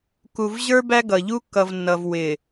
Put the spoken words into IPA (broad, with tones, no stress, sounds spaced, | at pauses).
k u˨ v ʑ ə˞˦ b æ˦ ɡ ʌ˨ ʎ u˦ kː ʌ˨ v nː ʌ˨ v w ɪ˨